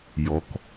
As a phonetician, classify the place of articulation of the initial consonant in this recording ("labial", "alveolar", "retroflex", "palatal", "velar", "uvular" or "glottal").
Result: palatal